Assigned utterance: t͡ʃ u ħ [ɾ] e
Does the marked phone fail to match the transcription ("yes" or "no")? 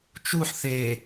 yes